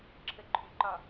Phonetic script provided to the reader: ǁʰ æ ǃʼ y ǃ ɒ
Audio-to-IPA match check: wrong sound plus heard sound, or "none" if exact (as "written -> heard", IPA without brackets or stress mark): æ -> ə